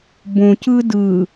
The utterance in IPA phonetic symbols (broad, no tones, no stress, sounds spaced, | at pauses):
b õ c ɯ d ɯ